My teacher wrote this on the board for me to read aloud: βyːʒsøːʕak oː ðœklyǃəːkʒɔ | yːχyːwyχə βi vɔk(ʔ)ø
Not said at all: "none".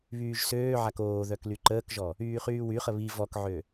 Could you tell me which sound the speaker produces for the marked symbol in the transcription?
ʕ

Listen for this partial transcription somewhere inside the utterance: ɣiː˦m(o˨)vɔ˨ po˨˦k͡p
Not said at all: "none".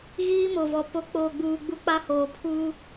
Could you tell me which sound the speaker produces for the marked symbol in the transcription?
o˨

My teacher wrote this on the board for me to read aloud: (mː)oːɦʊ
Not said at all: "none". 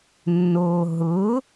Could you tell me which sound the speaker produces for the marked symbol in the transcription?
nː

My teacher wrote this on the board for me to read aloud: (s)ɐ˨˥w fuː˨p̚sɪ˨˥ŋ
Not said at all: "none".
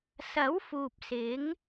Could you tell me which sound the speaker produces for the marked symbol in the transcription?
s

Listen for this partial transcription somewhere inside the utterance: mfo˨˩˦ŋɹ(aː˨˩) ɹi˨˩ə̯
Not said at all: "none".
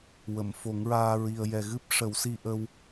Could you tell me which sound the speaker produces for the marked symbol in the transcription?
aː˧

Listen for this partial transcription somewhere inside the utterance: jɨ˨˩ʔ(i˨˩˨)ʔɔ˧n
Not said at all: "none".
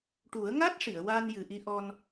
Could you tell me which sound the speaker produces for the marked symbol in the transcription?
i˧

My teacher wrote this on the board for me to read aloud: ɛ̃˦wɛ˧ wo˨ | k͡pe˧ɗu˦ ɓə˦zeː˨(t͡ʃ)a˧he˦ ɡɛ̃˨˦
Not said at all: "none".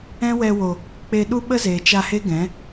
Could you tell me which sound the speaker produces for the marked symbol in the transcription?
t͡ʃ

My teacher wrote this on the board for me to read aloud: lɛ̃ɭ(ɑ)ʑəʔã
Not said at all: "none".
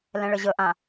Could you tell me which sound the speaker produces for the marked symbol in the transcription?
ə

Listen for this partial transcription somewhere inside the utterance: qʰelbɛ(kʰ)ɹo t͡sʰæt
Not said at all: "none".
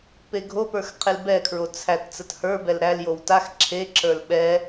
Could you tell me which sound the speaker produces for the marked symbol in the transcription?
kʰ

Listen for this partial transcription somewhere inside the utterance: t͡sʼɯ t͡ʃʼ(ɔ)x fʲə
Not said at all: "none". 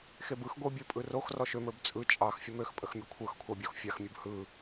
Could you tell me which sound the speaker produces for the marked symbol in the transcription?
ɑ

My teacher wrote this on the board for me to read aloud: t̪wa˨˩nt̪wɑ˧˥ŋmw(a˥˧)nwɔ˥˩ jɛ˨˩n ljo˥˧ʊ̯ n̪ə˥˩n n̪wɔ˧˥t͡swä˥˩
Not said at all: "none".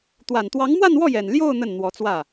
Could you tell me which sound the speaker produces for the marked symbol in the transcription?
a˥˧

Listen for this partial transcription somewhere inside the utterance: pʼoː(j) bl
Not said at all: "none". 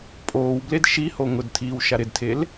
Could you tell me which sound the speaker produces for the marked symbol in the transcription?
w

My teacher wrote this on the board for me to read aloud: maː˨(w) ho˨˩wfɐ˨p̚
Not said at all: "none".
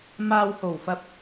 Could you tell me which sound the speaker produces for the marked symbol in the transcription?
w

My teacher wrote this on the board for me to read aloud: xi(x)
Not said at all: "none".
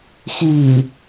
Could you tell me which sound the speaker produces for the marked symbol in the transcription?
none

